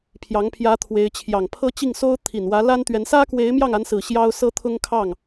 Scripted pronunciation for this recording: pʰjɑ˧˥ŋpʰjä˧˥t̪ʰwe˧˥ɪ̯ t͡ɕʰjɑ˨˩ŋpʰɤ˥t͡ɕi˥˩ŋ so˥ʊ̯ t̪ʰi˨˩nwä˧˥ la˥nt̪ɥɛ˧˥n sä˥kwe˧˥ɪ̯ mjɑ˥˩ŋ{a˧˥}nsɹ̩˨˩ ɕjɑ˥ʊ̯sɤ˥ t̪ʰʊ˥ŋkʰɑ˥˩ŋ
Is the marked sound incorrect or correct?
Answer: correct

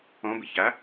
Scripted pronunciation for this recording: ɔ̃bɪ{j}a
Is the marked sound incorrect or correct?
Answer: incorrect: ç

